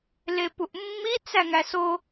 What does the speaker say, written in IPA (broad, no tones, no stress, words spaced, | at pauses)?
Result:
lepuʔmːi t͡sæŋæso